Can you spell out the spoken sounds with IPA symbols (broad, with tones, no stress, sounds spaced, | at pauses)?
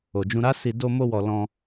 o˨ d͡ʒ ũ˧ ɾ a˦ s i˧ d o˧ m o˧ w ɔ˨ l ɔ̃˧